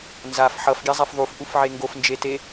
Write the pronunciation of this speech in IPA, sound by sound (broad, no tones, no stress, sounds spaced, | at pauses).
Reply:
n z a f ħ ʌ f ɡʲ ɛ zˤ ɛ f ðˤ u f ʔ u f ʕ e ŋ ɡ o f n d͡ʒ e t e